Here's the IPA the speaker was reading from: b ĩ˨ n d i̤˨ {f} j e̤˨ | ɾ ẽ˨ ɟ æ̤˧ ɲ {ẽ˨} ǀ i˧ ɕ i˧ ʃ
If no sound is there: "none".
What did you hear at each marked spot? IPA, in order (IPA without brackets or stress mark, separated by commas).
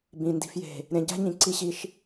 f, ĩ˨